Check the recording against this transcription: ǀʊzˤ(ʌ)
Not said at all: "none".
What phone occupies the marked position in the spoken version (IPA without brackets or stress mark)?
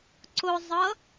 ʌ